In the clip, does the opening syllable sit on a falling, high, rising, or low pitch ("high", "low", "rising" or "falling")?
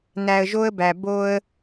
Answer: low